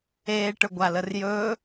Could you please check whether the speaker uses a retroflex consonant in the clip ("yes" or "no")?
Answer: yes